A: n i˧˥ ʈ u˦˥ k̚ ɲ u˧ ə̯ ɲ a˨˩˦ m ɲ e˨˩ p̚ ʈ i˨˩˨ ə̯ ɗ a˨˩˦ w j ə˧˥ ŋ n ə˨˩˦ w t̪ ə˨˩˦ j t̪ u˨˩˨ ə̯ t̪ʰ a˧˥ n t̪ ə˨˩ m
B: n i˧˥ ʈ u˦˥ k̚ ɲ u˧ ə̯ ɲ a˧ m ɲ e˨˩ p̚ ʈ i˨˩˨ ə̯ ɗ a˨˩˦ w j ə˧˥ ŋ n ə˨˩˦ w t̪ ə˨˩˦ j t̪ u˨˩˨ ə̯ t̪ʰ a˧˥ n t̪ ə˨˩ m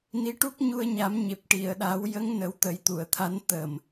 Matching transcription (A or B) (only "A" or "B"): A